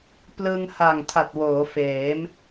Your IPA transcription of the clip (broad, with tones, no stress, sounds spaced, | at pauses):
p l ɯ˧ ŋ h a˨˩ ŋ tʰ a˨˩ t̚ w oː˩˦ f eː˩˦ m